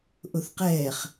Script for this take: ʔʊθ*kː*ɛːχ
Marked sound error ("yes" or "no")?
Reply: yes